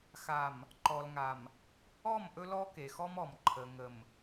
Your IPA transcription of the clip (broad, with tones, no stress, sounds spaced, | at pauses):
x a˨ m | ǃ ɔ˨ l ŋ a˨ m | ɔ˦˨ m ʔ ɵ˦ l ɔ˦ k e˨ x ɔ˦ m ɔ˨ m ǃʰ ə˨ ŋ ə˨ m